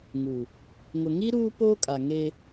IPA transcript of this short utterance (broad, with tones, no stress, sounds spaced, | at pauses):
ŋ u˨ | ŋ ʊ˨ ŋ i˦ ɾ uː˦ p oː˦ kʼ a˨ ŋ e˦